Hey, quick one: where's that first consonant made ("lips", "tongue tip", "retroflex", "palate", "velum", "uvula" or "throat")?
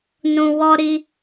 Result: tongue tip